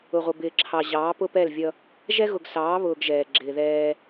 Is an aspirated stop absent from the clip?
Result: no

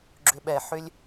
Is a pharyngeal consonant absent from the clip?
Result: no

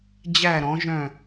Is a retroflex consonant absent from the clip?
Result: yes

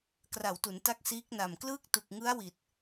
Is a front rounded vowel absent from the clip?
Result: yes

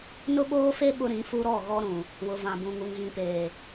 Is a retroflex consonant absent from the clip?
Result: yes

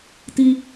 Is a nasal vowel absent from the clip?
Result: yes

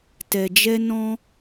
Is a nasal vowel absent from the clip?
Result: no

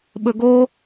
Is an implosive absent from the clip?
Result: no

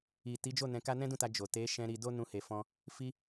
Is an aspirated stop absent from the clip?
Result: yes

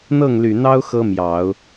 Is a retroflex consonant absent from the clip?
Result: yes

